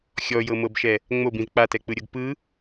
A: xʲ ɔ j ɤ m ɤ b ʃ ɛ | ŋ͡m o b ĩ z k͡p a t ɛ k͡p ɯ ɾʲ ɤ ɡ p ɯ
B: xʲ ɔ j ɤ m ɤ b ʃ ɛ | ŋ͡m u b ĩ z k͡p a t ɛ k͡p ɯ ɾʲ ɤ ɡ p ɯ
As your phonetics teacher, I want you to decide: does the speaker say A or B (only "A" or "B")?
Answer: A